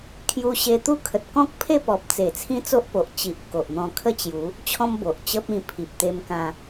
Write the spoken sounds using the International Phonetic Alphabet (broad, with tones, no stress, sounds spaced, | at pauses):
kʰ j u˧ ɕ e˧ t̪ u˦ kʰ ə˨ t̚ k ɔ̃˦ k̚ pʰ e˥˧ p ɔ˨ p̚ t͡s e˨˩ t͡sʰ ĩ˦ t͡s o˦ ʔ p o˨ ʔ t͡ɕ i˨ ʔ k o˨ ʔ n̪ ɔ̃˧ kʰ ə˥˧ t͡ɕ j u˨˦ | t͡ɕʰ ɔ̃˦ m b o˨ ʔ t͡ɕ ə˦ p̚ ĩ˧ pʰ i˨ p̚ t̪ e˧ m k ã˧